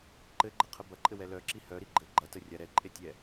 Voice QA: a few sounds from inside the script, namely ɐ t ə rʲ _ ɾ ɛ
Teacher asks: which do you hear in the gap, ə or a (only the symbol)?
a